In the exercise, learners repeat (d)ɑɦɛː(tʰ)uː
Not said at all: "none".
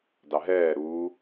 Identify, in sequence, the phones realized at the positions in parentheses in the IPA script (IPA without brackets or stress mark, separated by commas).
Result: d, ɾ